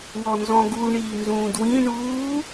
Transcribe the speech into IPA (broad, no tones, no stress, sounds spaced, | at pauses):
w ɔ n z ɔ̃ ɡ u ɳ iː n z ũː d w ĩ ɳ uː